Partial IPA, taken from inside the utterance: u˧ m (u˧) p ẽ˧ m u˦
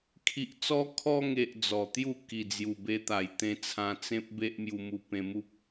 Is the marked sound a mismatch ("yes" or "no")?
no